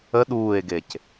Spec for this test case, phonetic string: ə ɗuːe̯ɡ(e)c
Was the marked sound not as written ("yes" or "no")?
no